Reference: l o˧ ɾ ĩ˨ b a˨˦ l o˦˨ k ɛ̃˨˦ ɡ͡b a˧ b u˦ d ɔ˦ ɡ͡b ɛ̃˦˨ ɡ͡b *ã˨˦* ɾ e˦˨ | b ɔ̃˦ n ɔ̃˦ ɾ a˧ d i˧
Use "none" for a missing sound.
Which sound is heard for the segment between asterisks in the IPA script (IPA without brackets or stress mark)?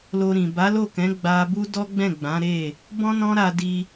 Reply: ã˨˦